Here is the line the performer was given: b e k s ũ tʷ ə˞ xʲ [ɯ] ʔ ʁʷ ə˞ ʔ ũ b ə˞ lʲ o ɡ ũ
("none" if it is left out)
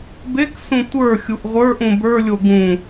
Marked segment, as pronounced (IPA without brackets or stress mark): u